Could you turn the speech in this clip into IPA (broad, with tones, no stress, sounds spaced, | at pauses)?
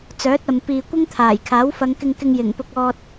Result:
t͡s œː˨˥ t̚ ɐ˨ m p iː˨ kʷ ɪ˥ ŋ t̪ʰ aː˨˩ j kʰ aː˨˥ w f ɐ˨˧ ŋ k ɪ˧ ŋ k ɪ˧ ŋ j ɪ˨˩ ŋ p ʊ˨ k̚ ɔː˨ t̚